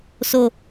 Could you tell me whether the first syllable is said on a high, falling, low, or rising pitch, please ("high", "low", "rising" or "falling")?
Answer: low